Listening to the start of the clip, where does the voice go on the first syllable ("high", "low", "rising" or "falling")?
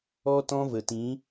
high